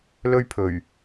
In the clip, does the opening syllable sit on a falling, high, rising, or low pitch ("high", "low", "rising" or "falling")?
high